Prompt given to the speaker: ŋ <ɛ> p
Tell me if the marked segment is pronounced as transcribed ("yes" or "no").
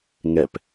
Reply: yes